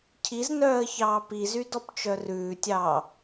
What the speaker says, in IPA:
cʰiznœːə̯çɑː pizydɔpt͡ʃœ rʉːtʲɑː

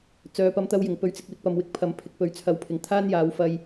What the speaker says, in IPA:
t͡sœː˨pɐ˨˧mt̪ɐ˧wjɪ˨˩ŋ pɵ˨˧ɥt͡sɪ˨k̚wɪ˧k̚pɐ˨m wɪ˧k̚pʰɐ˨mpʰɪ˨k̚pɵ˨ɥ t͡sʰɐ˨˧wpʰɪ˨ŋt̪ʰaː˥njaː˨˧w fɐ˧j

